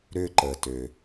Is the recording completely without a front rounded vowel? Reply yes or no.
no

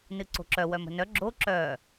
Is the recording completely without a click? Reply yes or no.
no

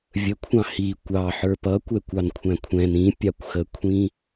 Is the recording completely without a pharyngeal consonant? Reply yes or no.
no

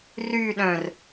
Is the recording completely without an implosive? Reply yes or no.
no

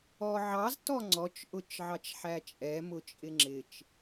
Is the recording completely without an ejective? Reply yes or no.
no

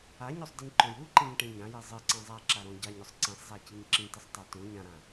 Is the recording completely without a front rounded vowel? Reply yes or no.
yes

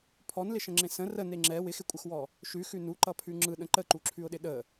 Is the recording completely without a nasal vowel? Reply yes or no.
no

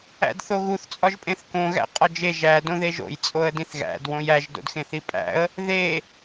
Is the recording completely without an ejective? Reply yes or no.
no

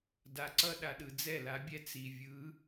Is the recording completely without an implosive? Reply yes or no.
no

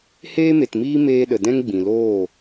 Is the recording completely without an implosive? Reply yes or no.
no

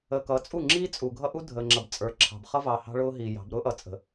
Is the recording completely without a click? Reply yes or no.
no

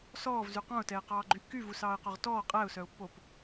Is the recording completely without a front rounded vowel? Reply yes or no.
no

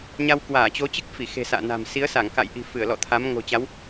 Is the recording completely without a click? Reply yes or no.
yes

